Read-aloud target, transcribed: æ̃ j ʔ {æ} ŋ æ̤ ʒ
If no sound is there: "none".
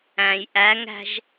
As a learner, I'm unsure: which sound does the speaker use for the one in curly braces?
æ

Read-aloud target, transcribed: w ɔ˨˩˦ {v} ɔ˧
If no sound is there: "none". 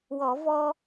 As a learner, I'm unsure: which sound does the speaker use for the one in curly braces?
v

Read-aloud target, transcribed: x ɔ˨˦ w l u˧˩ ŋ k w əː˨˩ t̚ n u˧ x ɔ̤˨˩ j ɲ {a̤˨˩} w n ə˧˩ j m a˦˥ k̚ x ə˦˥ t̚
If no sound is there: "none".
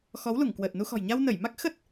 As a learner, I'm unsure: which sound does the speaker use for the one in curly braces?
a˧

